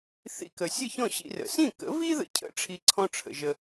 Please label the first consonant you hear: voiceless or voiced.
voiceless